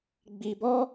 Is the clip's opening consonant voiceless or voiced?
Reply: voiced